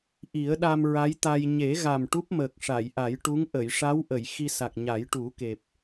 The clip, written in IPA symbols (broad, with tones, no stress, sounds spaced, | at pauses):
ʔ i˨˩˦ ə̯ ɗ a˧ m ɹ a˧˥ j t̪ a˧ j ɲ e˨˩˦ ɣ a˨˩ m ʈ u˦˥ p̚ m əː˨˩ k̚ ʂ a˨˩˨ j ʔ a˨˩˦ j ʈ u˧˥ ŋ ʔ ə˨˩˨ j ʂ a˧˥ w ʔ ə˨˩˨ j x i˧ s a˨˩ k̚ ɲ a˨˩˦ j ʈ u˨˩˦ k e˨˩ p̚